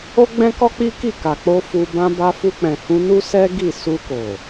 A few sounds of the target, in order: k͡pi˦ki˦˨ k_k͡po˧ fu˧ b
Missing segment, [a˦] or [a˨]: a˨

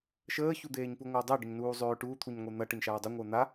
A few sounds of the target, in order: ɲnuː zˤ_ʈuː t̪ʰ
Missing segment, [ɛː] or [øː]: øː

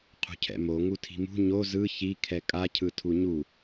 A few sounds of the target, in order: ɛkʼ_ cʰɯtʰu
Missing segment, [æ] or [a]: a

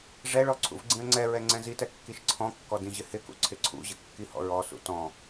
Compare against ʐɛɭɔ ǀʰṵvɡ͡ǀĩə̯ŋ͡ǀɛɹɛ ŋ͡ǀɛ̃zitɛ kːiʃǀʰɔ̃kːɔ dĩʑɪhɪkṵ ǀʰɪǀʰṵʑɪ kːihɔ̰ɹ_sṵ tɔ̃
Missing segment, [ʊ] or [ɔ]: ɔ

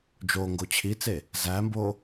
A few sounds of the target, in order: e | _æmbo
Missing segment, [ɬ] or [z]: z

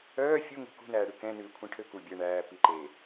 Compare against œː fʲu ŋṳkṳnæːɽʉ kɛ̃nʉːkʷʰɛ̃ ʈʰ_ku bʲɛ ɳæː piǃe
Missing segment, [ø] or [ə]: ø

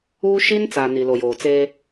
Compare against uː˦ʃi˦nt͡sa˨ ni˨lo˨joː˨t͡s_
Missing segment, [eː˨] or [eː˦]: eː˦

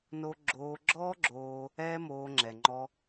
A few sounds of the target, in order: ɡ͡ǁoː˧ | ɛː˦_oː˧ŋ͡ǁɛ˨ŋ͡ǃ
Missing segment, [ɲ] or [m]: m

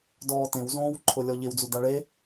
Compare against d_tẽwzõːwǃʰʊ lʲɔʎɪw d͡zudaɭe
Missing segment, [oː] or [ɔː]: ɔː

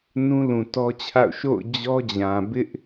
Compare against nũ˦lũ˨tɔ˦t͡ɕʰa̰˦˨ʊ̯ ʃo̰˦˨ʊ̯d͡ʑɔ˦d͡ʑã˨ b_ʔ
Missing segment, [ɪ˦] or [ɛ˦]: ɪ˦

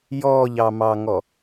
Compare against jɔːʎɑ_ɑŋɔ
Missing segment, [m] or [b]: m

